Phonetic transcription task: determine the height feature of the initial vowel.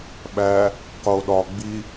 low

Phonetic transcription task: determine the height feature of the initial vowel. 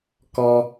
mid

